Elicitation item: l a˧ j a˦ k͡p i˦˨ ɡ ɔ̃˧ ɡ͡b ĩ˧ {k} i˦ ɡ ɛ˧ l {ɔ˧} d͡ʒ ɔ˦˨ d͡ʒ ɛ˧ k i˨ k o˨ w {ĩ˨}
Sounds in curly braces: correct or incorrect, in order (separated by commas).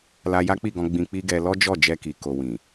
incorrect, incorrect, correct